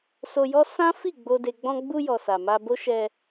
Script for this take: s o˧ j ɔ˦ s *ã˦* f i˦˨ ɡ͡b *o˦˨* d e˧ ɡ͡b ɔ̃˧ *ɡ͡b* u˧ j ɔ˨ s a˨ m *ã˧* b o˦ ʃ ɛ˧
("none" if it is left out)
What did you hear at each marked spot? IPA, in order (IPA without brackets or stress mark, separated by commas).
ã˦, o˧, ɡ͡b, a˧